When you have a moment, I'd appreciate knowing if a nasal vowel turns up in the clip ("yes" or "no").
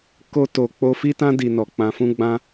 yes